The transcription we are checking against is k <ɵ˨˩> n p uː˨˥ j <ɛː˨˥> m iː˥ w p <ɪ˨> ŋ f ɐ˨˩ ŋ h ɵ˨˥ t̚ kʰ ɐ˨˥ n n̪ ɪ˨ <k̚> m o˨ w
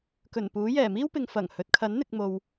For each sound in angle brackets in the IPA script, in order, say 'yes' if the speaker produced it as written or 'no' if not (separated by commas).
yes, no, yes, yes